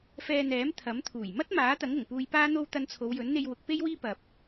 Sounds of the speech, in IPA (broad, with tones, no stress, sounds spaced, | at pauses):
f ɛː˧ n̪ ɛː˨˥ m t̪ʰ ɐ˨˥ m t̪ʰ uː˨˩ j m ɐ˥ t̚ m aː˨˥ t̪ ɐ˨˥ ŋ ʊ˨˩ ŋ p uː˧ j p aː˥ n̪ o˥ w t̪ ɐ˧ n t͡sʰ o˨˧ w j ɵ˨˥ n n̪ e˧ j w ʊ˨˥ k̚ p e˥ j w iː˥ p ɐ˨ p̚